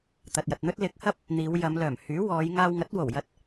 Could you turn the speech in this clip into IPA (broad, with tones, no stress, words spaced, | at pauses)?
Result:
t̪ɐ˨t̚jɐ˨t̚n̪ɵ˥t̚ lɪ˨˥k̚hɐ˥p̚ | n̪iː˨˧w jɐ˨˧mlœː˨˩mhyː˨˥ wɔː˨˧jŋaː˧wŋɐ˨˥t̚ wo˨˩wjɐ˧t̚